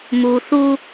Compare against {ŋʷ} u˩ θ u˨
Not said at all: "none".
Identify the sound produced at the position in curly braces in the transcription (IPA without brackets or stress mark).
m